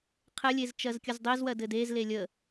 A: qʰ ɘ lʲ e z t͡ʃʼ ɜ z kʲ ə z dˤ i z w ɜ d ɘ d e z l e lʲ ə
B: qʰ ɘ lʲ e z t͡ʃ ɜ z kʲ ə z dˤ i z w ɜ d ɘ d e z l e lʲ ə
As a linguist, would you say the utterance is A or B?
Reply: B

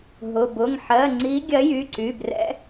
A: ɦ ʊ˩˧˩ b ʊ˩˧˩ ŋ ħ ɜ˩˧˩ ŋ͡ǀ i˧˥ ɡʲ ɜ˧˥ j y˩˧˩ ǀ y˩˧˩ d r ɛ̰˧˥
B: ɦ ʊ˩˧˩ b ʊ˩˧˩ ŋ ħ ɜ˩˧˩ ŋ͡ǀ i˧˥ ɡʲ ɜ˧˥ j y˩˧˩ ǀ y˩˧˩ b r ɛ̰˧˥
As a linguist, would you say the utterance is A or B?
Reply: B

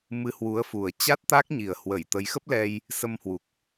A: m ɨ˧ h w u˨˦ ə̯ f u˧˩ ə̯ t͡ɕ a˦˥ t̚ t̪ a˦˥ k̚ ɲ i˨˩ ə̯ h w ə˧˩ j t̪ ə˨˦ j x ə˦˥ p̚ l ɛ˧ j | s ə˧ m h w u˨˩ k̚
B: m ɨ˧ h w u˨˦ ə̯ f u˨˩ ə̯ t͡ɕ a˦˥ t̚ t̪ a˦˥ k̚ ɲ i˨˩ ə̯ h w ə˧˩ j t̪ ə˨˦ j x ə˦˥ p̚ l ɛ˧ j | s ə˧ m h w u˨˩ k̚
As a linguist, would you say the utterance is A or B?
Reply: B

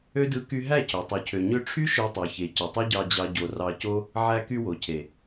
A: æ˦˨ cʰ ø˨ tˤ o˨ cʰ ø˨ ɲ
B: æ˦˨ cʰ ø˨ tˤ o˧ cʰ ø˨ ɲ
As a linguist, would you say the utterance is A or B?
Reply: A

